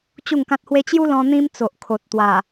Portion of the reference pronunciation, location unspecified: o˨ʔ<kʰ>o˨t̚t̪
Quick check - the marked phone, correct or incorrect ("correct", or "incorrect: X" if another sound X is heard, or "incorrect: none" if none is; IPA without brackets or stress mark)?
correct